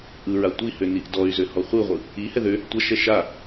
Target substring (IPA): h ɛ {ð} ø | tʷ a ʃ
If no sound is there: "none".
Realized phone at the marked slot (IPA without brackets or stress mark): ð